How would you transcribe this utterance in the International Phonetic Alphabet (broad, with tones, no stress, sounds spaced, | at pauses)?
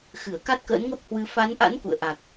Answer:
x ɨ˧˩ ə̯ k a˦˥ t̚ k ə̰ː˧˥ n ŋ ə˦˥ p̚ h w ɨ˧ f a˨˦ n ʔ a̰˧˥ n k ṵ˧˨ ə̯ ʔ a˨˩ k̚